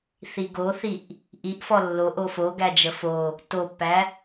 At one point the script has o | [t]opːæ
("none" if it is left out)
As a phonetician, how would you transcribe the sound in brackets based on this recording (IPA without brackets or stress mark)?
t